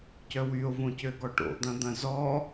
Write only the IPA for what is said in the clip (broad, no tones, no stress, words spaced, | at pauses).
cœwyo̯ võcøɡɔʈo̰ d̪ɐ̃d̪ɐ̃zɔ